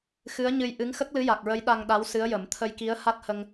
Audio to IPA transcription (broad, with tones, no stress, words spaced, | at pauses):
xɨ˧˥ə̯ɲɨ˧jʔɨ˧˥ŋ xə˦˥k̚ lɨ˧˥ja˨˩k̚ɹə˧˥j ɗa˧ŋɗa˧˥w sɨ˧˥ə̯jə˨˩˦m t̪ʰə˧jki˧˥ə̯ha˦˥t̚hə˧ŋ